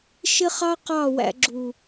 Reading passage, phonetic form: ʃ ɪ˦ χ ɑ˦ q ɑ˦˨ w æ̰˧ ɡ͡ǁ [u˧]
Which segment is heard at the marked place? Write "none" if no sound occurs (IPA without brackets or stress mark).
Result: u˨